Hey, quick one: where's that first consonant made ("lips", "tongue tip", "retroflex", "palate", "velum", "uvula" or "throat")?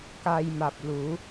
velum